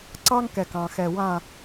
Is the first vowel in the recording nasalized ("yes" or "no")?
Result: no